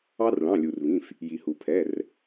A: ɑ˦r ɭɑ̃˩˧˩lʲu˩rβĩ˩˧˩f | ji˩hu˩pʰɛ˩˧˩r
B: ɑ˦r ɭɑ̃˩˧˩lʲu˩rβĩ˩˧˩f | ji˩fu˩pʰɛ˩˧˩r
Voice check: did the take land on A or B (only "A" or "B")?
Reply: A